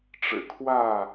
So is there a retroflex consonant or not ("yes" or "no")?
yes